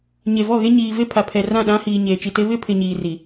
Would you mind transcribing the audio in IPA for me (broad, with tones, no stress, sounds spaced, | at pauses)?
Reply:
ɲ e˨ v ɔ˦˨ ɣ e˦ ɲ iː˨ v e˦ pʰ a˨ pʰ ɛ˨ r ã˦˨ ɗ ã˦ h iː˨ ɲ eː˨ t͡ʃ i˨ t e˦ β ɪ˦ pʰ ɪ˨ ɲ iː˨ r i˨